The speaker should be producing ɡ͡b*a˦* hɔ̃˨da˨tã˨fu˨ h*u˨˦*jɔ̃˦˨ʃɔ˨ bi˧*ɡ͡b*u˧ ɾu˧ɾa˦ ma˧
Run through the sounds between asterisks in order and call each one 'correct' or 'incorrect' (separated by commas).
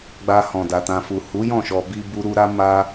incorrect, correct, incorrect